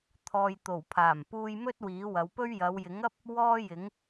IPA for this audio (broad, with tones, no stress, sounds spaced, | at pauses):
t̪ʰ ɔː˨ j t̪ o˨˩ w pʰ aː˨˩ m p uː˧ j m ɵ˥ t̚ w iː˨˥ w ɐ˨˧ w p ɵ˥ ɥ j ɐ˨˧ w j ɪ˨˥ ŋ ɐ˥ p̚ | w ɔː˥ j ɪ˨˥ ŋ